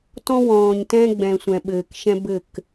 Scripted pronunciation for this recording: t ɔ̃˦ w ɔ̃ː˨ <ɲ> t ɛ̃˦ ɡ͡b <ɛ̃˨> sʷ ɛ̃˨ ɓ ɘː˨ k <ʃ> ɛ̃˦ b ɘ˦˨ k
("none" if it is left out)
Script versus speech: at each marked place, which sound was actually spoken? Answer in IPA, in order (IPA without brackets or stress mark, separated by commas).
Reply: ɲ, ɛ̃˨, ʃ